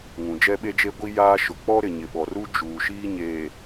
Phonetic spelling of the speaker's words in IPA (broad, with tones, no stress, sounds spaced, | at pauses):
ŋ ũ˨ d͡ʒ ɛ˦ ɓ e˦ d͡ʒ e˦ ɡʷ i˦ j aː˦ ʃ ʊ˨ k͡p ɔ˦ ɾ ɪ˨ ɲ ɪ˨ ɓ ɔ˨ r u˦ d͡ʒ uː˨ ʃ iː˦ ɲ eː˨